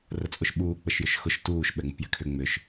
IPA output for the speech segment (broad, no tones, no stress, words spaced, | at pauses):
rət͡sʼʊʃɓuː k͡pəʃjʏʃxʊʃ tuːʃ ɓɛŋ͡mṳpjɛ̤kʰʏ ŋ͡mʏʃ